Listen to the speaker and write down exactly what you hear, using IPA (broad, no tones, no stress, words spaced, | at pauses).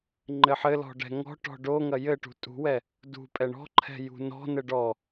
ŋ͡ǃɘħɘlɔ̤ ɖɛ̤ŋɔ̤ʈɔ̤ ɖoŋɐ jɘʈṳ tʼṳwɛ | dṳ pʼɛɳɔ̤ǃʰɛ̤ jṳnɔ̤nɘ ɖɔ